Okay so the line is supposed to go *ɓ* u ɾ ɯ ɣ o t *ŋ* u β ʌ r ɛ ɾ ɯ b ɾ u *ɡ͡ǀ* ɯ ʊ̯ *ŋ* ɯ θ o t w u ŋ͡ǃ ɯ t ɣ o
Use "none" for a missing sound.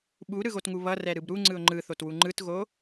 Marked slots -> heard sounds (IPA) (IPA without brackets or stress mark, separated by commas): ɓ, ŋ, ŋ͡ǀ, ŋ͡ǃ